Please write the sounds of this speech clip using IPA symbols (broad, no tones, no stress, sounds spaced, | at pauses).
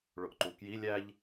ɭ ʊ ʔ ǃ u k j i lʲ æ ʎ